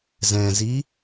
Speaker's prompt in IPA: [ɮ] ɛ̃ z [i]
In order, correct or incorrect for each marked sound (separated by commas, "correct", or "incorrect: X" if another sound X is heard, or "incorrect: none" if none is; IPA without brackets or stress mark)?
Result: incorrect: z, correct